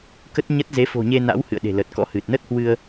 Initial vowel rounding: unrounded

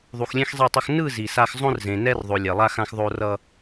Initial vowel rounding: rounded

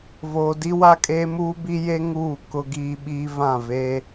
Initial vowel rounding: rounded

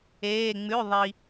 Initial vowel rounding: unrounded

